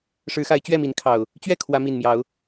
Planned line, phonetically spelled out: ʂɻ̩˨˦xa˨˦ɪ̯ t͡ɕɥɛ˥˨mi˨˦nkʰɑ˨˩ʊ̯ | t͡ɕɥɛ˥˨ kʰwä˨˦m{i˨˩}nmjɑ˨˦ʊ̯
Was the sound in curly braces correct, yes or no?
yes